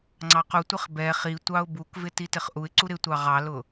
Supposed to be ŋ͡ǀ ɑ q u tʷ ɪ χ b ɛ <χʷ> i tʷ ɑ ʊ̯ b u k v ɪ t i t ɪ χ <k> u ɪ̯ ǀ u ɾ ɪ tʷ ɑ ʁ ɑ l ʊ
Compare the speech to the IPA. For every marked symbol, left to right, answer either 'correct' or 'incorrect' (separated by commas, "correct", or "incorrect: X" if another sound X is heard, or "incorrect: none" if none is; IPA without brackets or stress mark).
incorrect: χ, incorrect: ʔ